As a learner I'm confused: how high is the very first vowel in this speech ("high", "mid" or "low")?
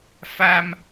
low